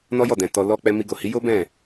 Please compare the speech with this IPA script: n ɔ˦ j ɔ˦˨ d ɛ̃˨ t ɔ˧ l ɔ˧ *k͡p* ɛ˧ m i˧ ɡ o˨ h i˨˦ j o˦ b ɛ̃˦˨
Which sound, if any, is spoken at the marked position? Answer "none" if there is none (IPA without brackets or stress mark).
k͡p